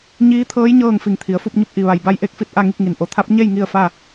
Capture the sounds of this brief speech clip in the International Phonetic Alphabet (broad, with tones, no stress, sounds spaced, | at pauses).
ɲ iː˧˥ t̪ʰ ɤː˧˥ j ɲ ɤː˥˨ ŋ f i˧˩ ŋ t̪ʰ i˩˧ ə̯ f u˥˨ p̚ ɲ u˧ p̚ ʔ i˩ ʋ a˩ j b a˧˥ j ʔ e˧ k̚ f i˥˨ t̚ ʔ a˥˨ ŋ i˥˨ k̚ ŋ i˩ n ʔ o˩ t̪ʰ a˧˥ p̚ ɲ e˥˨ j ŋ i˥˨ ə̯ f a˥˨